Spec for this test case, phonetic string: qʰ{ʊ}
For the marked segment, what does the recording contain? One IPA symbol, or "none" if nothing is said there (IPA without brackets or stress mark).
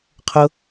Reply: ʊ